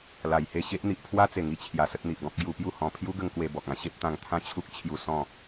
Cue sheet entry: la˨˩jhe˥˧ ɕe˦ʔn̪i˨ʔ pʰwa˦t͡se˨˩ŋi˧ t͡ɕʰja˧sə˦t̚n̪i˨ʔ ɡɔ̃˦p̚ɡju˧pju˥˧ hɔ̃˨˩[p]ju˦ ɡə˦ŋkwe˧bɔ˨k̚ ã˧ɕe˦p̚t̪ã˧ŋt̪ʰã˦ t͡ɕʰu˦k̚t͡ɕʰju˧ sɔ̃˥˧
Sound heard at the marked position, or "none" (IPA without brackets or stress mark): pʰ